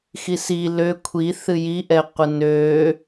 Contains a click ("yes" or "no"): no